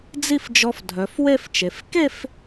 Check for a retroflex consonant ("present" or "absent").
absent